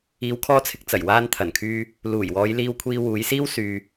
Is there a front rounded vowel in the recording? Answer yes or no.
yes